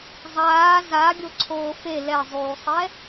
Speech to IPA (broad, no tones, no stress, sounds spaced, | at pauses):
zˤ aː z a ɡʲ o ǀʰ oː f e l ɛ zˤ uː sˤ ɛ